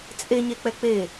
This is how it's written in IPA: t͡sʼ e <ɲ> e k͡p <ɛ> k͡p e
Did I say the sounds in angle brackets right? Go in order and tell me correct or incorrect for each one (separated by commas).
correct, correct